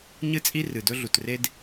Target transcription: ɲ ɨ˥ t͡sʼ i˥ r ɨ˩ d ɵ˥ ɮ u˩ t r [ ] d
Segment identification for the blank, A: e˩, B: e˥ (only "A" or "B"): B